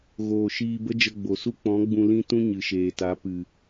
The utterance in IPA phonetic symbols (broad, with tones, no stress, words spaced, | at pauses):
ɣoː˨ʃiː˧bə˦ d͡ʒə˧ɡ͡bo˨ su˦k͡pɔ̃˨˦ɡ͡bũ˧ lĩ˦tũ˦ ɲɨ˨ʃeː˨ta˨˦ pɨ˨